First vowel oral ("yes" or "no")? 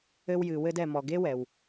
yes